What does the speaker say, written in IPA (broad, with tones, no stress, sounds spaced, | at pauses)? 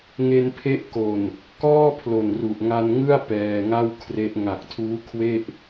ŋ e˧ n pʰ e˦˥ ʔ k o˨˩ n | k ɔː˥˩ pʰ l o˨˩ n r u˨˩ ʔ ŋ a˧ n ŋ ɯ˥˩ a̯ p ɛː˧ ŋ a˥˩ w kʰ r e˦˥ ʔ ŋ a˨˩ k̚ tʰ uː˦˥ kʰ w e˥˩ ʔ